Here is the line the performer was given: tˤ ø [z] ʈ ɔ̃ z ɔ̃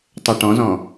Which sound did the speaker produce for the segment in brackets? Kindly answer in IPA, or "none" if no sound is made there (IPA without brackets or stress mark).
none